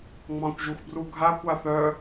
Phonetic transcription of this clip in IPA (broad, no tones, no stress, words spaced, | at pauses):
ŋ͡mɑ̃kʷʒuxbruɡʱa kʷaθœ